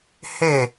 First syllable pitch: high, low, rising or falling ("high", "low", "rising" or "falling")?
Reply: falling